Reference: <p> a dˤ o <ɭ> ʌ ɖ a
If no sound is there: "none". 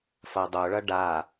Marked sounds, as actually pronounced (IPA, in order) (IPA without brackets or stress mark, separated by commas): f, ɭ